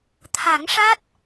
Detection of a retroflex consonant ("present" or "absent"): present